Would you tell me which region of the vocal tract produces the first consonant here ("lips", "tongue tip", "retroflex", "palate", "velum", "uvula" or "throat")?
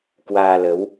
velum